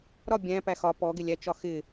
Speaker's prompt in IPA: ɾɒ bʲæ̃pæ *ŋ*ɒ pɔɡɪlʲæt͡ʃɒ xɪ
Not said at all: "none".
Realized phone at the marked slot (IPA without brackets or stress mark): x